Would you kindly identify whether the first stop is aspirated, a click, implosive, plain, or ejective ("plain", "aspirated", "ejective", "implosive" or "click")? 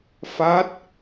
plain